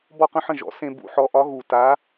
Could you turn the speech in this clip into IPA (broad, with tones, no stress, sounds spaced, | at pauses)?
b ɔ˥˩ q ə̃˥˩ ħ ə̃˥˩ ʒ ɔ̰˩˥ s ẽ˧ b ṵ˩˥ ħ ɔ˩˥ ʔ ɒ˩˥ ɣ u˩ t a˩˥